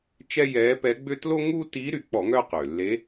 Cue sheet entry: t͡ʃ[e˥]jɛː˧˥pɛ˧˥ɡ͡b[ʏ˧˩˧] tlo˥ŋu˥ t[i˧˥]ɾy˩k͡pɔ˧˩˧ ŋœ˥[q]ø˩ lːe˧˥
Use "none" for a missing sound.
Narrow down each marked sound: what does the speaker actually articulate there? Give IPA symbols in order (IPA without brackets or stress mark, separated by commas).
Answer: ɛ˥, ʏ˥, i˧˥, q